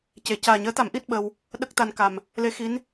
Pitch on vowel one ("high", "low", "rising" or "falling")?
low